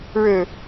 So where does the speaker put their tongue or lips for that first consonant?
retroflex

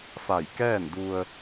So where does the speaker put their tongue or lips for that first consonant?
lips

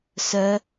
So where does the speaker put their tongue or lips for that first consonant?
tongue tip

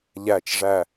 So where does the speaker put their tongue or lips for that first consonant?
palate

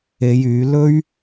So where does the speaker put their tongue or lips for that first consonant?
palate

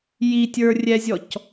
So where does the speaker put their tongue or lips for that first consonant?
palate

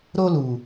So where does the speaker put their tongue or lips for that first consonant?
tongue tip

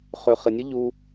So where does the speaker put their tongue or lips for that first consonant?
uvula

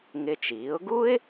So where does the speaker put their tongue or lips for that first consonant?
velum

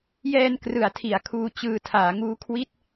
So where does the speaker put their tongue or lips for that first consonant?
palate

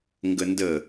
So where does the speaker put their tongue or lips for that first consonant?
velum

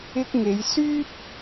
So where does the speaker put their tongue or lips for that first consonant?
velum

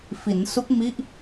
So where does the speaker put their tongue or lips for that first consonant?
lips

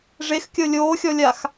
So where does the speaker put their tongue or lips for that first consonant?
retroflex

